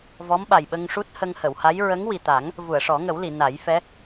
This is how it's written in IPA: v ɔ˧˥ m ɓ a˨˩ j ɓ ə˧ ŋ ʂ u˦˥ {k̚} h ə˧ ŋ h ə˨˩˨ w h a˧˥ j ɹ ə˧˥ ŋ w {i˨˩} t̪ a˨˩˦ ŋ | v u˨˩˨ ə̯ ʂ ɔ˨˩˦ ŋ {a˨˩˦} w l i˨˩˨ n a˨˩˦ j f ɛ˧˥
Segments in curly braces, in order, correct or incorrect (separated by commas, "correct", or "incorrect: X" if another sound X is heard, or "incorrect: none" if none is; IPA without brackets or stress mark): incorrect: t̚, correct, incorrect: ə˨˩˦